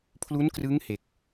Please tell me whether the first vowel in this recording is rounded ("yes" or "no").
yes